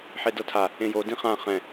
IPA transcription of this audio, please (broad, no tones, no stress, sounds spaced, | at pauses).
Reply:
ħ e d ɤ tʰ a | ẽ j o d ĩ χ ã χ ɛ̃